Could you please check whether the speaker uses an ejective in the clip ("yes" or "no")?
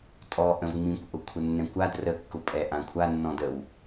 yes